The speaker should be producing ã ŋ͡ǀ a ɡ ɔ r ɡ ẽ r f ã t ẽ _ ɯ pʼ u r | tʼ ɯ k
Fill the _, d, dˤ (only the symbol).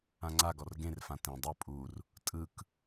dˤ